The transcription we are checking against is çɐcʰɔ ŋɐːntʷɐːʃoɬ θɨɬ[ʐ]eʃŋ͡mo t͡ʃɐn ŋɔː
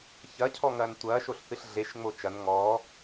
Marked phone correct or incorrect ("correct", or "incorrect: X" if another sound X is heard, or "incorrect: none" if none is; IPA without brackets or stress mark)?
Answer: incorrect: ɮ